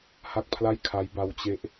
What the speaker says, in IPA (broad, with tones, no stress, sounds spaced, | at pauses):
h a˥˩ k̚ pʰ l a˥˩ j kʰ a˦˥ j b a˧ w t͡ɕ e˦˥ ʔ